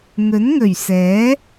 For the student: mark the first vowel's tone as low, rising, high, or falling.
rising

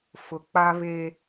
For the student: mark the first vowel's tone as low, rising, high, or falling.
high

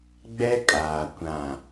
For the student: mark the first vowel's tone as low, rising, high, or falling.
high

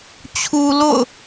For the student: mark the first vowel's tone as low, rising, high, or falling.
low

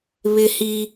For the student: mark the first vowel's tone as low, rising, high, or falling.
high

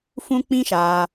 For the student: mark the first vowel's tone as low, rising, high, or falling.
high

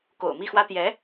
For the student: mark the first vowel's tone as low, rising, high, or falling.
low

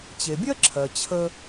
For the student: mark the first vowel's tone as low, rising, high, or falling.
low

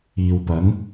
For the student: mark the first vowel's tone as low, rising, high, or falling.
low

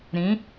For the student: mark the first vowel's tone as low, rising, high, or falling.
rising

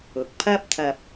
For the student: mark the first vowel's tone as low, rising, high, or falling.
rising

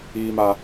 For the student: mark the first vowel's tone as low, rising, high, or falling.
high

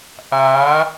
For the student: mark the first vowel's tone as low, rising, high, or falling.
rising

